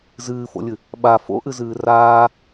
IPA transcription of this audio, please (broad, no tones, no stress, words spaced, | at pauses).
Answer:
zɨːfo̰lʲɨ | ɓa fo̰ʔɨzɨː raː